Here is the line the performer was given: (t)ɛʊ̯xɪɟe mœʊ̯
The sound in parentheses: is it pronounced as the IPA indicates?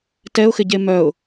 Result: yes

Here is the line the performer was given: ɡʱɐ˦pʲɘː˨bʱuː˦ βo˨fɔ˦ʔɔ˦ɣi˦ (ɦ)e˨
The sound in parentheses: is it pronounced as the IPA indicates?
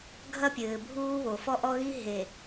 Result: yes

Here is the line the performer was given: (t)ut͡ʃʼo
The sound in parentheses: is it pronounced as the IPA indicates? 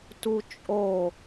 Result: yes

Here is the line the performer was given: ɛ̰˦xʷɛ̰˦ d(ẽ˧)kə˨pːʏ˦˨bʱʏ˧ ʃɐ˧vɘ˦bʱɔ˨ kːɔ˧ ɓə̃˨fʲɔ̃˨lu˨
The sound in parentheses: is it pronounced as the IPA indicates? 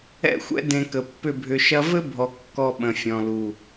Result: yes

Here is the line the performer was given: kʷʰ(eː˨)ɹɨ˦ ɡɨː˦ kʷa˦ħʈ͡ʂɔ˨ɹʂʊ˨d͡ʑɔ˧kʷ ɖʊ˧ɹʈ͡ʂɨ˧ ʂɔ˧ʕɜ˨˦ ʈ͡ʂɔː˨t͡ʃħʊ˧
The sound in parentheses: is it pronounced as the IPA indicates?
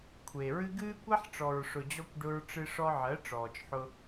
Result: yes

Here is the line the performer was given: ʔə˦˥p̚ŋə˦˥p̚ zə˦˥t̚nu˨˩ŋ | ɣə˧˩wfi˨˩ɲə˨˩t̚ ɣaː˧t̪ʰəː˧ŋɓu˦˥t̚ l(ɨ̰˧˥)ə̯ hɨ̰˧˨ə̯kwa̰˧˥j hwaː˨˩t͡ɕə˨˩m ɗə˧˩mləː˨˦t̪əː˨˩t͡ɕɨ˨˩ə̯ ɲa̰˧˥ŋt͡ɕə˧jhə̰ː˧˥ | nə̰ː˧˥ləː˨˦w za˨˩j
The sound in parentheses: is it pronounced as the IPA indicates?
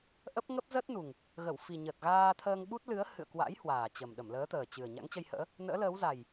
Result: no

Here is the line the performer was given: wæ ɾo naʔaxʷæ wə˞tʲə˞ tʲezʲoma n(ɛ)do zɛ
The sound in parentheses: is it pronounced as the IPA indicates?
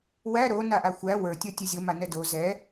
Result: yes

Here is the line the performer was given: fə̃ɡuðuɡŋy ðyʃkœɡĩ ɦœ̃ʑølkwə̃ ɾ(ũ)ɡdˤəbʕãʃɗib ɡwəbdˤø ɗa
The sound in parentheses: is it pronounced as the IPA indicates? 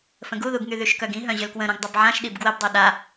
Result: yes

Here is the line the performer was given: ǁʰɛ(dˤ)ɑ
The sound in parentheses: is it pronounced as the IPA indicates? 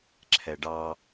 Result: no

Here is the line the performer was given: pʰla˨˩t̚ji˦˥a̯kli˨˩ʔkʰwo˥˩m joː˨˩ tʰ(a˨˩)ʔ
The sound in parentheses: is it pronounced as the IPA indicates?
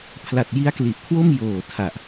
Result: yes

